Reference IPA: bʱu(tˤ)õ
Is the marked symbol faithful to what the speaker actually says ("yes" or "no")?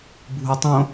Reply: yes